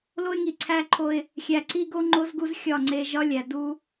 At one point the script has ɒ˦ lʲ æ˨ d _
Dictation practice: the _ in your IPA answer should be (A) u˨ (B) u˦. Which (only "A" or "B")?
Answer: B